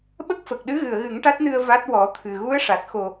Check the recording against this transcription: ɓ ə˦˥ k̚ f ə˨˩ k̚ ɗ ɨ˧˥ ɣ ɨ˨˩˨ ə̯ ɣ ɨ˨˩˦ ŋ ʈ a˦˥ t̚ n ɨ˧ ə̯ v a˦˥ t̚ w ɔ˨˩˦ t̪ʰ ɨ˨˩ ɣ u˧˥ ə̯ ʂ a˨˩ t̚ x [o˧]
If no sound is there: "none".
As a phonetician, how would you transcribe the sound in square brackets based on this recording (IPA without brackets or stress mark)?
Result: o˨˩